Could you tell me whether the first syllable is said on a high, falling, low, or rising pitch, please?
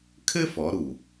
high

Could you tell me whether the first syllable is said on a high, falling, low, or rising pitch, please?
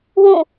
falling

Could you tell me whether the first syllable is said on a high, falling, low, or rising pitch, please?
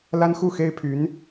high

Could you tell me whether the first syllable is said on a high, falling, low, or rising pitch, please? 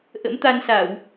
rising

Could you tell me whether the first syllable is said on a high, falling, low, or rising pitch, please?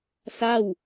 falling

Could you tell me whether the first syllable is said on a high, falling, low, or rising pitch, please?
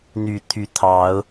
low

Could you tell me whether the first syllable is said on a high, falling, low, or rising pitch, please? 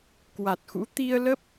low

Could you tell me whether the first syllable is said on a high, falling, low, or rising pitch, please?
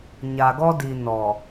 low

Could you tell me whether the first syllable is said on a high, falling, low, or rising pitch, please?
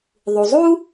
low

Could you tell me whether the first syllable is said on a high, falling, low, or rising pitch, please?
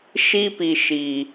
high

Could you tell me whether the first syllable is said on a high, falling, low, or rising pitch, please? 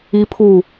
high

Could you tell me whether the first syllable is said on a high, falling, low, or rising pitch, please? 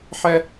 high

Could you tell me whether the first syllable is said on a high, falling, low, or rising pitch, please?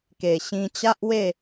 low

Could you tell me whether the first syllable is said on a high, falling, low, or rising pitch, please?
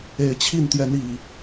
low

